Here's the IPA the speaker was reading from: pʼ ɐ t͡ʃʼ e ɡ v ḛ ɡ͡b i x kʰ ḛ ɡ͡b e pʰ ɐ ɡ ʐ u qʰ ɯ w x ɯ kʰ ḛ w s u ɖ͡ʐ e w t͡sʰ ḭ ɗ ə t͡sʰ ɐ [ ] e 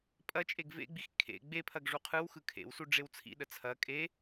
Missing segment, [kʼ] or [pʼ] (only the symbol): kʼ